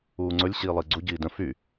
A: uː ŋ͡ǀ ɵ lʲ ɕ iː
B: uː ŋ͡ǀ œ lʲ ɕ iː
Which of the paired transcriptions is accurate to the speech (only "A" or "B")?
A